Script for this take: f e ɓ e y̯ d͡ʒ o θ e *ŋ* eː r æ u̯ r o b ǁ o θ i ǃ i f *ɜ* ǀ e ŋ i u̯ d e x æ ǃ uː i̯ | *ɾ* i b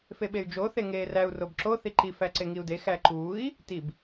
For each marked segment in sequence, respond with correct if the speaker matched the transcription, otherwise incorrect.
correct, incorrect, incorrect

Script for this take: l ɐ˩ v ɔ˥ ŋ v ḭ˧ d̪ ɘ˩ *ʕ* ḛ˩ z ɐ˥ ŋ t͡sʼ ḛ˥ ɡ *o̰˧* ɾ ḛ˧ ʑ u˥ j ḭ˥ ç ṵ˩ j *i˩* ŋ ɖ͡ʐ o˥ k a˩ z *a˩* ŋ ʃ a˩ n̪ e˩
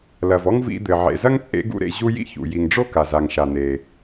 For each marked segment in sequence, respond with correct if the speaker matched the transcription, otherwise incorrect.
correct, incorrect, correct, correct

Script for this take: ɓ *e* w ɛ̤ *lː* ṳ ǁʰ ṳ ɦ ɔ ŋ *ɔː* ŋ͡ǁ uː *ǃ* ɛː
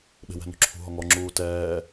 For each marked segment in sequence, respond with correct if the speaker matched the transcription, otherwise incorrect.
incorrect, incorrect, incorrect, incorrect

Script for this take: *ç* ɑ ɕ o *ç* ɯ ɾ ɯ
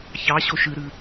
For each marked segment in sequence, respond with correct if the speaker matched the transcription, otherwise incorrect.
correct, incorrect

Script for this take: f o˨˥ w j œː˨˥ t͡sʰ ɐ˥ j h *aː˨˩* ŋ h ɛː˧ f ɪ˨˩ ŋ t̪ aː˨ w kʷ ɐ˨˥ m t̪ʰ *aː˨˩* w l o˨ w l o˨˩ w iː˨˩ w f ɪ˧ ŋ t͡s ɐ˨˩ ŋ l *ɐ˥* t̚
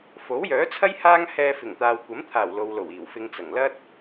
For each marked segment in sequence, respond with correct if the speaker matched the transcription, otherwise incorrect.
incorrect, correct, correct

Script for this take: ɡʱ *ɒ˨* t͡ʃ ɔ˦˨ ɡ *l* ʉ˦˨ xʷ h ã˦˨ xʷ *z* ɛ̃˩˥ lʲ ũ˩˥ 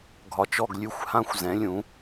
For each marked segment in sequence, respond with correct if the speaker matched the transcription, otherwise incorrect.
correct, incorrect, correct

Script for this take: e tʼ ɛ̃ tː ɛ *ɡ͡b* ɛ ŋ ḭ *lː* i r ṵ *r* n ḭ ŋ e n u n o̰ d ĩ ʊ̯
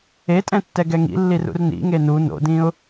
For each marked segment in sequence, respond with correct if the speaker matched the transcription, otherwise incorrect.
incorrect, correct, correct

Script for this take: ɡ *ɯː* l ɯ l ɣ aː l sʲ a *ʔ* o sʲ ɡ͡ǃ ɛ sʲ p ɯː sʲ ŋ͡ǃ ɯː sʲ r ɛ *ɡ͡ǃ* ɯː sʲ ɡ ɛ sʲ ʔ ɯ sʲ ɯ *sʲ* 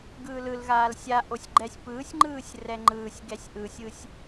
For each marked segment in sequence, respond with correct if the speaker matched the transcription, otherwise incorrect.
correct, correct, incorrect, correct

